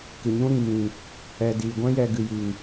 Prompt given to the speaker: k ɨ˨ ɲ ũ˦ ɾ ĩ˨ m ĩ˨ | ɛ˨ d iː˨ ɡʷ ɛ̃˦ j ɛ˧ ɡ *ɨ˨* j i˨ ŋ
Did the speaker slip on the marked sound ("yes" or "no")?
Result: no